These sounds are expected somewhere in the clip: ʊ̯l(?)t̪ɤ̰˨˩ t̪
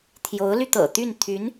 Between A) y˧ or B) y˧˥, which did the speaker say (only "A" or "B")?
A